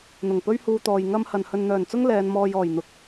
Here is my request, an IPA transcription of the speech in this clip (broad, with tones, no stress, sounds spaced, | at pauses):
n̪ ʊ˨˩ ŋ p ɵ˥ ɥ h uː˧ t̪ ɔː˨ j ŋ ɐ˥ m h ɐ˨ n h ɵ˨ n n̪ œː˨˩ n t͡s ʊ˥ ŋ l ɛː˨˧ n m ɔː˧ j ɔː˨˩ j n̪ ʊ˨ k̚